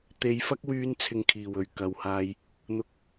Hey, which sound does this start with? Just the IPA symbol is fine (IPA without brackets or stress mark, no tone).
t̪